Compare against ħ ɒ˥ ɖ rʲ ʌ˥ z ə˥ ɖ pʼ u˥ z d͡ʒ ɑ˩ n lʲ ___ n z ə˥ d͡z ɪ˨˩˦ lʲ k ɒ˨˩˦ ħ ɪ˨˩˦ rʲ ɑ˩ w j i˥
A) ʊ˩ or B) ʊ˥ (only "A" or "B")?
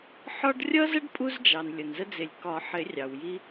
A